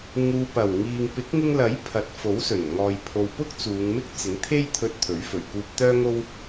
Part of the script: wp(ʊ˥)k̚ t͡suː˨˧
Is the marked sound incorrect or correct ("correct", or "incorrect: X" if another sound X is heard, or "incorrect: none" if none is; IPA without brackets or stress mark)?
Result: correct